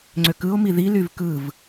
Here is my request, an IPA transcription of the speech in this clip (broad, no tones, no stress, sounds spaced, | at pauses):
ŋ͡ǀ ø k ɯ o̯ m i ð i l y v k ɯ v